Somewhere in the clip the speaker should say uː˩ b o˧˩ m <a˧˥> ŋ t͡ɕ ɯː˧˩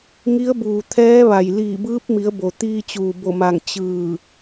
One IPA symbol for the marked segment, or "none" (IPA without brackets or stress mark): a˧˩